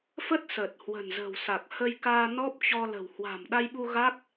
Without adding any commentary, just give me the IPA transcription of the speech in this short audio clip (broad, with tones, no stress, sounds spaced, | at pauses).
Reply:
f ə˦˥ t̚ s əː˨˩ t̚ h w ə̤˨˩ n z ə̤˨˩ w s a˨˩ k̚ h ə˧ j k aː˧ n ɔ˦˥ p̚ t͡ɕ ɔ˧ l ə̤˨˩ w h w a̤˨˩ m ɗ a˧ j ɓ u˧ ɣ a˦˥ k̚